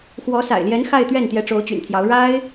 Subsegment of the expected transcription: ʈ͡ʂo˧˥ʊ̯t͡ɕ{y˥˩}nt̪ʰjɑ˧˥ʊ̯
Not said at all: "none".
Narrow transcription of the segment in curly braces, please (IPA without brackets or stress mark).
y̰˨˩